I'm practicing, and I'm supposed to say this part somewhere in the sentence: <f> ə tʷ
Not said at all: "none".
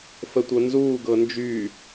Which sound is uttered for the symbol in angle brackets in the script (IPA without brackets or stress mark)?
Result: f